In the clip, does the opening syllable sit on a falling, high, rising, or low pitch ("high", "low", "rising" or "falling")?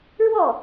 falling